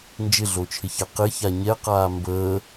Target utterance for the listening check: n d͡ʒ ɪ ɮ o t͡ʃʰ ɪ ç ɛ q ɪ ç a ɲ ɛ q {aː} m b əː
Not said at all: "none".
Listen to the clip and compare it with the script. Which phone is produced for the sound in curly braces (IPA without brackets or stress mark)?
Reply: aː